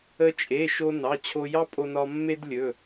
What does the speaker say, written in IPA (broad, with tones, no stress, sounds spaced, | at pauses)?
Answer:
ə˧ t͡ʃʼ e˩˧˩ ʃ o˧ n ɑ˩˧˩ t͡ɕʰ o˧ j ɑ˥ pʼ o˧ n ɒ˧ mː e˥ d lʲ ɵ˩˧˩